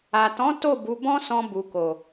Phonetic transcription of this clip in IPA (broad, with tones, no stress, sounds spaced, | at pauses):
a˨ t ɔ̃˨˦ t o˦˨ b u˨˦ b ɔ̃˦ s ɔ̃˧ b u˨ k o˨